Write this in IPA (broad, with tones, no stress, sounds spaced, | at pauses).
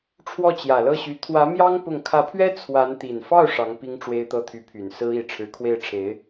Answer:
ʈ͡ʂʰ w ɔ˥˩ t͡ɕ j ä˨˩ l ɤ˥˩ ɕ y˧˥ t̪ʰ w ä˧˥ m j ɑ˥ ŋ p ʊ˥˩ ŋ kʰ ä˧˥ pʰ ɥ ɛ˥ t͡sʰ w a˧˥ n t̪ i˨˩ n f ɑ˥˩ ʊ̯ ʂ ɑ˧˥ ŋ p i˥ ŋ ʈ͡ʂ w e˥ ɪ̯ t̪ ɤ˥˩ t̪ʰ y˧˥ pʰ y˨˩ n s ɹ̩˥ i˨˩ ʈ͡ʂʰ ɻ̩˧˥ kʰ w e˥˩ ɪ̯ ʈ͡ʂʰ e˧˥ ɪ̯